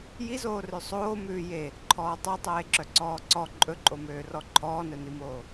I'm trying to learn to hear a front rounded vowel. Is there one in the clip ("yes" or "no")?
yes